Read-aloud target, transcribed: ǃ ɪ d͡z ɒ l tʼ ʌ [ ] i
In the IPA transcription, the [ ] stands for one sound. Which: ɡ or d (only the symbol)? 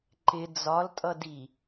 d